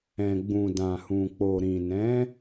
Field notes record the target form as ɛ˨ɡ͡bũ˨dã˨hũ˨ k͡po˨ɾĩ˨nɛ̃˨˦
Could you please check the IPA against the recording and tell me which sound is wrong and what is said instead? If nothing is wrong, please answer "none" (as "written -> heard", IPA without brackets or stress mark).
ɛ˨ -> ɛ̃˨